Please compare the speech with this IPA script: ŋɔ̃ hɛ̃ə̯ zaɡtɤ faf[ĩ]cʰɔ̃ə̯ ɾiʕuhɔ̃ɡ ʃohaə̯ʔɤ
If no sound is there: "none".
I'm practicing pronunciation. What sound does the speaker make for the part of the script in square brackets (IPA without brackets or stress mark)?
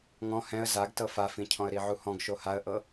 ĩ